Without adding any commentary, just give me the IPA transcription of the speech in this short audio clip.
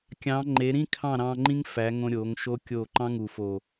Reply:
kʲ ɑ̃˨˦ ŋ͡ǃ e˨˦ ɾ ĩ˦ kʰ ɑ̃˦˨ ɾ ɑ̃˧ ŋ͡ǃ ĩ˦ ŋ f æ˨˦ ŋ õ˧ ɾʲ o˨˦ ŋ ʃ o˦ kʲ o˦˨ ǃ ɑ̃˦ ŋ u˨ f o˨

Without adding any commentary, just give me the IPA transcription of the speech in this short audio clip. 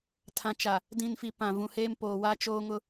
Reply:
tʰ ã˨ t͡ʃ a˨ | d ĩ˨ n f i˨ p ã˨ v ũ˨ h eː˦ m p oː˨ w a˦ t͡ʃ oː˦ ŋ ʊ˦

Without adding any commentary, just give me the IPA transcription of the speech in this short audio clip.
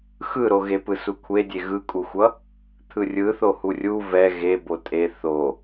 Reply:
x ɯ ɾ o ɣ e p ɯ s u kʷʰ e dʲ e ɣ ɯ kʼ u xʷ ʌ | t̪ʰ ɯ rʲ ɯ θ o h u rʲ u v ɛ ɣ e b o tʼ e θ o

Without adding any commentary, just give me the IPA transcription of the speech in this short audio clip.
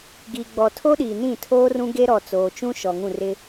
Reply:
ɡ iː˨ ɡ͡b ɔ˨ tʰ o˦ ɗ iː˨ n ĩ˦˨ tʰ oː˦ r ũ˦ ɡ e˦ ɾ ɔ˨ t͡s oː˨ t͡ʃ ũ˦ ʃ ɔ˨ ŋ ũ˦˨ r ɪ˦

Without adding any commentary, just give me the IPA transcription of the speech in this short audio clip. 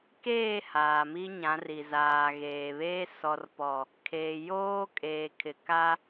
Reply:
k eː˦˨ h aː˨ m i˦ ɲ ã˨˦ r i˨ z aː˨ ɣ eː˨ β eː˦ s ɔ˨ r p ɔ˨ | kʰ eː˨ j oː˦ kʼ eː˨ kʰ ɪ˨ k a˦

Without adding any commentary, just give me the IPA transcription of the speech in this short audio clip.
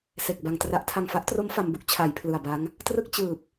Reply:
s e˨˩ k̚ b a˨˩ ŋ t r a˦˥ ʔ tʰ a˨˩ ŋ f a˦˥ ʔ t r o˦˥ m f a˧ m b u˥˩ k̚ t͡ɕʰ a˩˦ j pʰ l ɯ˨˩ a̯ b a˦˥ ŋ | t r ɯ˥˩ k̚ t͡ɕ ɯː˨˩ p̚

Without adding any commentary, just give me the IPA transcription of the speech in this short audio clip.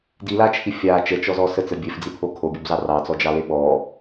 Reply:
d i l a t͡ʃʰ i fʲ a t͡ʃ ə t͡ʃ ɔ z ɔ s ə t͡s ə bʲ e f d͡z i pʰ o kʰ o bʲ o b z ɑ r ɑ t͡s ɔ d͡ʒ ɑ l e ɓ ɔ

